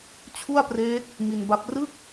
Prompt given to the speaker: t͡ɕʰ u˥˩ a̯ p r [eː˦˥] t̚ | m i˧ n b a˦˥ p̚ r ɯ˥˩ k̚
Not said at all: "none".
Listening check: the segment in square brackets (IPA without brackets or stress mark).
eː˦˥